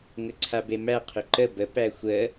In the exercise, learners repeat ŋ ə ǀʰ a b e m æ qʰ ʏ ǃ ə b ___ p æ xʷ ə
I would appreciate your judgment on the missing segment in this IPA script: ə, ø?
ə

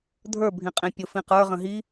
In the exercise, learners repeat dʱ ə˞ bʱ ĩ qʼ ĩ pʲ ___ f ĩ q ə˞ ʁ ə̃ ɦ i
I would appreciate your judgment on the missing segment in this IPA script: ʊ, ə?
ʊ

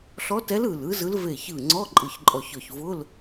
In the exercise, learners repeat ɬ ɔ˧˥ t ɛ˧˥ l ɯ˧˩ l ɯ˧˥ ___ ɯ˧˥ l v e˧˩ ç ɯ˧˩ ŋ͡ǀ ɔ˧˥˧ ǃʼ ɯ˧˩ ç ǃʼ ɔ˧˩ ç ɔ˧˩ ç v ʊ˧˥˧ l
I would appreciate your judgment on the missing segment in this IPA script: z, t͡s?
z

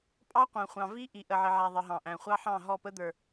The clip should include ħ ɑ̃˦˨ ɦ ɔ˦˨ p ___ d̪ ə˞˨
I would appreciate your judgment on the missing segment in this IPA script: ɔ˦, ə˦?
ə˦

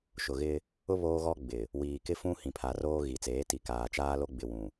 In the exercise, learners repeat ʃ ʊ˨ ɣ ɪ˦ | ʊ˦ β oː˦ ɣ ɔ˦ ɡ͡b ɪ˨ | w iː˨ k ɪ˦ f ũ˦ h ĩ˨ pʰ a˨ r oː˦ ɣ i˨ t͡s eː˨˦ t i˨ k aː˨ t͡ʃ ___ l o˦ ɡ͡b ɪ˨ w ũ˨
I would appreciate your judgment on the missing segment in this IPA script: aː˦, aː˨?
aː˦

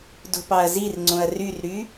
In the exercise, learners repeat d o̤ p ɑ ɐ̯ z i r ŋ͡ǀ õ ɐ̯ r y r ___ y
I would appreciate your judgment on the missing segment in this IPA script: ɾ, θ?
ɾ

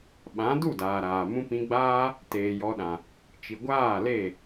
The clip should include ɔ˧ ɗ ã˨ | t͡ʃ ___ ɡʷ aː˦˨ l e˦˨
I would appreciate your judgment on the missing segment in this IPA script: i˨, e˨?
i˨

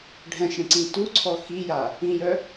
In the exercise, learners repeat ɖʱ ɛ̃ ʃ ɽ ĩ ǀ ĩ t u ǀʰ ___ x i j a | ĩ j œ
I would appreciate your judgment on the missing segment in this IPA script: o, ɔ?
ɔ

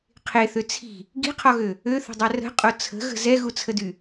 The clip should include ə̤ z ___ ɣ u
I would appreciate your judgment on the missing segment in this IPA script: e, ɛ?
ɛ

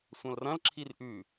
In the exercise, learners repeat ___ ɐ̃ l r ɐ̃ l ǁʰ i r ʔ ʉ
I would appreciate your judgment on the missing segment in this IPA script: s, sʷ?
sʷ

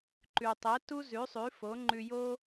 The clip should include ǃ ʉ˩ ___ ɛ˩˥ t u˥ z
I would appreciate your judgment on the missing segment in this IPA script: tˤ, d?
tˤ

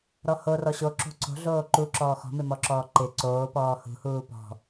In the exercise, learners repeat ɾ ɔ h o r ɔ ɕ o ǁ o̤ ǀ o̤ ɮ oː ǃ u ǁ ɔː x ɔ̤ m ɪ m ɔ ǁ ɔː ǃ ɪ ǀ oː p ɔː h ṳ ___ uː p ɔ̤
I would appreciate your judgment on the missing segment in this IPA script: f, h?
h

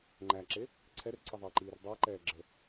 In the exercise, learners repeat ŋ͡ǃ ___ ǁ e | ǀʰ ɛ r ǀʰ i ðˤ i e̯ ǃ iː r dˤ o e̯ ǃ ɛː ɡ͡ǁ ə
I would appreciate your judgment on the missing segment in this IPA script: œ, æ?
æ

